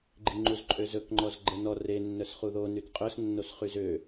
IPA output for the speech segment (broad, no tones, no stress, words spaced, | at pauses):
ɡ͡ǃiŋ͡ǃuzǃʼøzɵk ŋ͡ǃɔzɡ͡ǃɛnɔ re nːœsχuðo nytqʼœs nːosχyzø